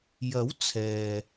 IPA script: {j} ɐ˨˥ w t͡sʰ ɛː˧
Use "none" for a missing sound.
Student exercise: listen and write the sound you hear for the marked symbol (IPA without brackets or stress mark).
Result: j